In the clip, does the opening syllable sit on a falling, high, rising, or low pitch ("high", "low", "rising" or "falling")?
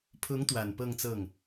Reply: rising